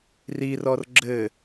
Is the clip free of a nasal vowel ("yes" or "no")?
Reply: yes